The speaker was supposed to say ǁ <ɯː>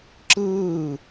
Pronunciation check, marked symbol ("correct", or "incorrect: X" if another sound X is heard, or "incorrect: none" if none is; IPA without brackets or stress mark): correct